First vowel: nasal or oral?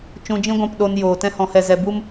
nasal